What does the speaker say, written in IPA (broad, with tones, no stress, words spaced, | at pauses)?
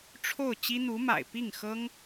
ʈ͡ʂʰo˥˩ʊ̯ t͡ɕi˥n̪u˧˥ma̰˨˩ɪ̯ pi˥˩ŋxɤ˥ŋ